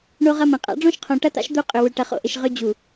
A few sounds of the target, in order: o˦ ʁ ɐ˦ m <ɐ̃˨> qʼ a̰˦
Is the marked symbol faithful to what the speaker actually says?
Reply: yes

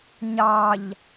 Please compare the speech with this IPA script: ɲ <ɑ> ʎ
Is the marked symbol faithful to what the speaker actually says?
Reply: yes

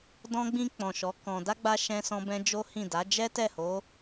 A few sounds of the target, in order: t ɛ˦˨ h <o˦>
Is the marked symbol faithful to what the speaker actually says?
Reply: no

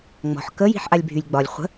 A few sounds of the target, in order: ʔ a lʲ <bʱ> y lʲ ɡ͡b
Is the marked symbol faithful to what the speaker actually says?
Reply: yes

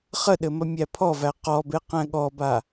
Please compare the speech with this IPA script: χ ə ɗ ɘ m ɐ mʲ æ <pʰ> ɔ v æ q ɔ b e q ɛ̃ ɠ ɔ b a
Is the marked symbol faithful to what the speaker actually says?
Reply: yes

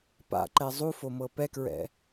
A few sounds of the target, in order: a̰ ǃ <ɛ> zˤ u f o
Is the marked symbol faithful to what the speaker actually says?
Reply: yes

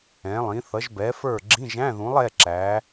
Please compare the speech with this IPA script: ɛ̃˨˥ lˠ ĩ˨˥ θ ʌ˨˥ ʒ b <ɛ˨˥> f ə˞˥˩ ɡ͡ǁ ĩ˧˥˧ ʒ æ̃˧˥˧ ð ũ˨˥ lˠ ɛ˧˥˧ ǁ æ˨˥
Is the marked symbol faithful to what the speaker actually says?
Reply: yes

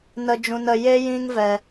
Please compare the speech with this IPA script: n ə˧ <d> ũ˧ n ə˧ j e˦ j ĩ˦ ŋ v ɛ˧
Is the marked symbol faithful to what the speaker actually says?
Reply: no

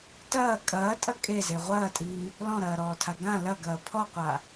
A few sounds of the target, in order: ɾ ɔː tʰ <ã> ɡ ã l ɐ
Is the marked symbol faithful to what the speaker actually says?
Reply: no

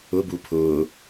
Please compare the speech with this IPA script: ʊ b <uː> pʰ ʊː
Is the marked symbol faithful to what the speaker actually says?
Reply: no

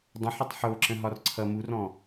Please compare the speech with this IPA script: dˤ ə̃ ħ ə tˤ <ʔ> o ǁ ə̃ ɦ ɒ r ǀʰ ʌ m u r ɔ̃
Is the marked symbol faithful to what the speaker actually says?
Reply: no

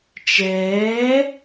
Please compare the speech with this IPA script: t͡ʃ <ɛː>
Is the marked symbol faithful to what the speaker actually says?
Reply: yes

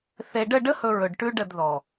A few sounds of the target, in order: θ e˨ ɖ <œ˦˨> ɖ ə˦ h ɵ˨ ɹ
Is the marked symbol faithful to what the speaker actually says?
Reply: no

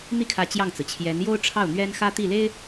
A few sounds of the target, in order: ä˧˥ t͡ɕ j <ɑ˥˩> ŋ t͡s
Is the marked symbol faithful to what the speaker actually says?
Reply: yes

